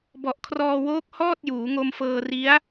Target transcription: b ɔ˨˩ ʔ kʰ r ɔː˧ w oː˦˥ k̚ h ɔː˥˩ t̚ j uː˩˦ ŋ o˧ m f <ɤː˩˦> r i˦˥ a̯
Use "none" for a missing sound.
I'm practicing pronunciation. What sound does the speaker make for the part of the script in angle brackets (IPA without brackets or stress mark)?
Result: ɤː˧